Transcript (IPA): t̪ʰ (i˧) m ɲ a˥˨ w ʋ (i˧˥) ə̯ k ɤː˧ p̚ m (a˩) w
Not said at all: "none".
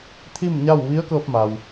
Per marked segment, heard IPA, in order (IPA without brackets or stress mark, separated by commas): i˥˨, i˧˥, a˩